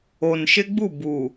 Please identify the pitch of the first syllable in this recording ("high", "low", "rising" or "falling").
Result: low